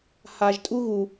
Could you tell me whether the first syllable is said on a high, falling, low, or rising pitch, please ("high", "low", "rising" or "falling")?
low